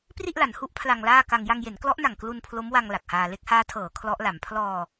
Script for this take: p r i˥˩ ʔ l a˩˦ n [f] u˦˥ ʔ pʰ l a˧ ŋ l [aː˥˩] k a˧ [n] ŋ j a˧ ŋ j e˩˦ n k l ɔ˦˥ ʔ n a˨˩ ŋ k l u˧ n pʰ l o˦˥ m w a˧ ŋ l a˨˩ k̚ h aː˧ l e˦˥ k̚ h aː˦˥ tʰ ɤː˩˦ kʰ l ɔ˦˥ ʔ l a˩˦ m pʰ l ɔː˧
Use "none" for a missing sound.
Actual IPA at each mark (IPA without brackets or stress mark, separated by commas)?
h, aː˥˩, none